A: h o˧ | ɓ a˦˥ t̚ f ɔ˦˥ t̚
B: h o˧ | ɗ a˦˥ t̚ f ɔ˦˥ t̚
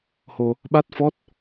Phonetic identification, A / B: A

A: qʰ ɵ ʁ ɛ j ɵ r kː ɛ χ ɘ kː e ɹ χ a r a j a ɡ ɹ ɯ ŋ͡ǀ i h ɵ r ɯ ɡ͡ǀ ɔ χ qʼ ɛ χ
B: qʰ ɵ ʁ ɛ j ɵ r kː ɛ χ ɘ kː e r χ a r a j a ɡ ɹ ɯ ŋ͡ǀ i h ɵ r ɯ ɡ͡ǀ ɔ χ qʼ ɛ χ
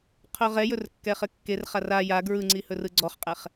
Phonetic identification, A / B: B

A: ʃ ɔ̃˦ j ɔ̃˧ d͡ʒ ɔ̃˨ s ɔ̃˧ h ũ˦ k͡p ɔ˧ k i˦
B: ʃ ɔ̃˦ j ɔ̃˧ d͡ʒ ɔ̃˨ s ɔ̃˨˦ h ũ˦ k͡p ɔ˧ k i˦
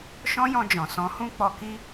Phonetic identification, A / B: B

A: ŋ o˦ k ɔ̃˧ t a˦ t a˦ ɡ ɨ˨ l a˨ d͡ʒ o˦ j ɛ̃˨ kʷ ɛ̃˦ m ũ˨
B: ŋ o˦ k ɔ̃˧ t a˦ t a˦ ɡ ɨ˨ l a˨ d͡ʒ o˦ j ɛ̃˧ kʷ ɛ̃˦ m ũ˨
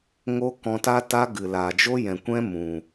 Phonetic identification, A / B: A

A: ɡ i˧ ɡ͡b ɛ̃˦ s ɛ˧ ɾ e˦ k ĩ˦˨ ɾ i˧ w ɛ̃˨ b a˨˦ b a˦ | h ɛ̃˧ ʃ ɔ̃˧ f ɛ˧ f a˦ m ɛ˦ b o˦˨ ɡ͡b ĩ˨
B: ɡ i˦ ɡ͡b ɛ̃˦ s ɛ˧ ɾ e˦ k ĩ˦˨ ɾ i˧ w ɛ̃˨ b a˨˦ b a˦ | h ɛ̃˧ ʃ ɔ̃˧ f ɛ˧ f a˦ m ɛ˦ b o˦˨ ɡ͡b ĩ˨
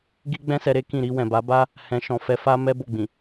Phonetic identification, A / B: B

